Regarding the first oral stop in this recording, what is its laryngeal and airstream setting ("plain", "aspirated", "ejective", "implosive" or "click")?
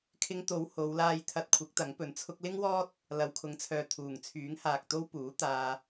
aspirated